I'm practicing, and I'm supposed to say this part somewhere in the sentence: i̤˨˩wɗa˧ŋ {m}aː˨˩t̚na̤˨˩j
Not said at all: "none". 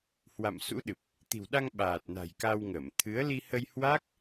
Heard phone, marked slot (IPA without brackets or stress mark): ɓ